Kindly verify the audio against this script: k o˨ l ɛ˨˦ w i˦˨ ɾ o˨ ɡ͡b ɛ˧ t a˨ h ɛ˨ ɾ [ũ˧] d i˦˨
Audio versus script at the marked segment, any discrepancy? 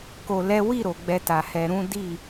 yes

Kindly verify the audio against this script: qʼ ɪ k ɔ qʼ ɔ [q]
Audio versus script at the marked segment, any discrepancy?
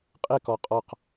no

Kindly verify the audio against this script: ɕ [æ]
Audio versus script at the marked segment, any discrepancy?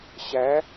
no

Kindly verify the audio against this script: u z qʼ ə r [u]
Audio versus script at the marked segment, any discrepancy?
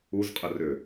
yes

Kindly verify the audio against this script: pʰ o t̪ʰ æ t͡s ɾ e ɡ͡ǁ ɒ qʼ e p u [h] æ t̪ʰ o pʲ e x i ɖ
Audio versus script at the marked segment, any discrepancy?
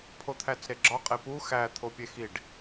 yes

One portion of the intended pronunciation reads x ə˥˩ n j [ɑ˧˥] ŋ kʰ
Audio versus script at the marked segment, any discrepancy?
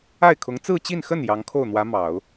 no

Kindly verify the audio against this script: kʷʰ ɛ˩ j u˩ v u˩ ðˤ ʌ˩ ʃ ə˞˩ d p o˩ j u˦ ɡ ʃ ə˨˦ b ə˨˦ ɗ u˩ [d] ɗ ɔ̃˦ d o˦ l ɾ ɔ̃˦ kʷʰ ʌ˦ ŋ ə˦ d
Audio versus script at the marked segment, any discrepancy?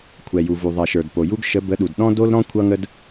no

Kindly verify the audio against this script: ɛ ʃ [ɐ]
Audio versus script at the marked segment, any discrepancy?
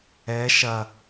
no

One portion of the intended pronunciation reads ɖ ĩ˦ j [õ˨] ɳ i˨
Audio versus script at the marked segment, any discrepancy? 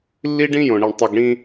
no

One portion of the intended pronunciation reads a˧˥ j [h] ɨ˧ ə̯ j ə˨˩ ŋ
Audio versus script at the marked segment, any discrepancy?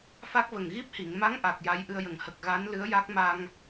yes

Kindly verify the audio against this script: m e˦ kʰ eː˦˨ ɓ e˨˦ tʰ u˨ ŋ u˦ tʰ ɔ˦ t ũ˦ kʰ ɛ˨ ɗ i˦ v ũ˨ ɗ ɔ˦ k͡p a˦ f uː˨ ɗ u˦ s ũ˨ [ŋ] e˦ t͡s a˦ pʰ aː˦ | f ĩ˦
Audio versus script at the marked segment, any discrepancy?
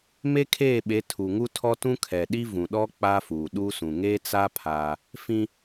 no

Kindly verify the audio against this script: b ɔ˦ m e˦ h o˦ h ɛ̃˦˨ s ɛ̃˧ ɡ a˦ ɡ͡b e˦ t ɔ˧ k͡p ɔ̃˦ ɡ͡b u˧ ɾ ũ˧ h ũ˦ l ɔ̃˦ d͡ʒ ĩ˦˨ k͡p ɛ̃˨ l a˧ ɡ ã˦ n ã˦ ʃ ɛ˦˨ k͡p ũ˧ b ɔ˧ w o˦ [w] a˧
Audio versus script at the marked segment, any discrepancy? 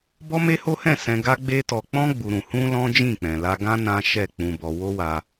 no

